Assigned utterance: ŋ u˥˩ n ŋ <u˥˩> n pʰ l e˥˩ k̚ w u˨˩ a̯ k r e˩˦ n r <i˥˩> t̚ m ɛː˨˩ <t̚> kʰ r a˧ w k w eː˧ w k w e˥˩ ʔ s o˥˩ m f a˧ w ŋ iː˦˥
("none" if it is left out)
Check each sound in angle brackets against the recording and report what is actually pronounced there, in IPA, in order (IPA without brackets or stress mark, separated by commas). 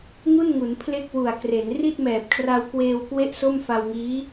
u˩˦, i˥˩, p̚